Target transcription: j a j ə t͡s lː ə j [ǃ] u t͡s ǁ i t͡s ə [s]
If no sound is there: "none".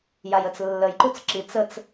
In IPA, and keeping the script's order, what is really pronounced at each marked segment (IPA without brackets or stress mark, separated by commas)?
ǃ, t͡s